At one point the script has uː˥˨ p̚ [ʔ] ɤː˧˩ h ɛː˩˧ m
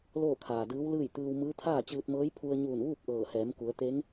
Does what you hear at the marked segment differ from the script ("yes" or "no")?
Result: no